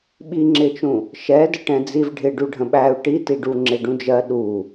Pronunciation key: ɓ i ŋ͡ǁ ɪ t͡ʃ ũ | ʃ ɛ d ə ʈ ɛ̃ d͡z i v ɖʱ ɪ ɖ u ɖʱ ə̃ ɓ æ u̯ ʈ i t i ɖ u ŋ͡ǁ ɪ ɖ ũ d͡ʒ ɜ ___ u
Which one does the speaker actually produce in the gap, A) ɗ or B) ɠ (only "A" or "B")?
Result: A